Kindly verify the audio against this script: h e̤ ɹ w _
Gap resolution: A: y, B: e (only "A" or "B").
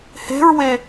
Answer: B